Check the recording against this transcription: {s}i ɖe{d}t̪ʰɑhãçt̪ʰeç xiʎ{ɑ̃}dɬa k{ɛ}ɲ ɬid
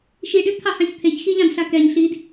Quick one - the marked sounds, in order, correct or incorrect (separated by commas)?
incorrect, correct, correct, correct